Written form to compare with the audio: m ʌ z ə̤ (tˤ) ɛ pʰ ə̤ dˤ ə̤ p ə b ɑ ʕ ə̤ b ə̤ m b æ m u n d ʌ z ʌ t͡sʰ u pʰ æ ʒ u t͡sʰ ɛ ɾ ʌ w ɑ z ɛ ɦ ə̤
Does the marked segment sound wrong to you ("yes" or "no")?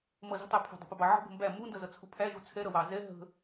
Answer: no